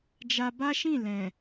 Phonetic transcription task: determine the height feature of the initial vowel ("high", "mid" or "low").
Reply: low